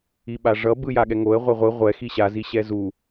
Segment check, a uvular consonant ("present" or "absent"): present